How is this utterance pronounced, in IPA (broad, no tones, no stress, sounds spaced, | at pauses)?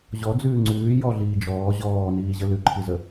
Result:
ʑ ɔ d͡z ʉː ŋ͡ǀ ʉː j ɔ ɮ iː d͡ʒ ɔː ʑ ɔː n iː ʑ ə l ʉ ǃʰ i z ə